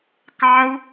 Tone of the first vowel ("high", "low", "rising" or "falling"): high